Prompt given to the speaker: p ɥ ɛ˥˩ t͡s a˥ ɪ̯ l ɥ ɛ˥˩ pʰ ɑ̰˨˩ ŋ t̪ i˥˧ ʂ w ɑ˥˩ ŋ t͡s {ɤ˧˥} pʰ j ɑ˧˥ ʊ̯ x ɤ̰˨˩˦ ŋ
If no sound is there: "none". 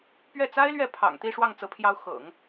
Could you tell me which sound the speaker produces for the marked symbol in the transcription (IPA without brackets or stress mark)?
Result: ɤ˧˥